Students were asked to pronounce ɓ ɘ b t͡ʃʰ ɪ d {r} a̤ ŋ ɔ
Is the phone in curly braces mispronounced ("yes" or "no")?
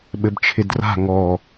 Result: no